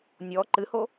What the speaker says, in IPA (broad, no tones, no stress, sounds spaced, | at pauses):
nʲ ɔ ǃ ɨ h o